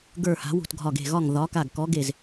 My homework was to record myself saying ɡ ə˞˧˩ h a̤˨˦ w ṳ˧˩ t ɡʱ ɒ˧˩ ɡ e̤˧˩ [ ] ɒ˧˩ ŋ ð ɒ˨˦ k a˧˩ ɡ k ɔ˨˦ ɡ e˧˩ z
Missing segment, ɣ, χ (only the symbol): ɣ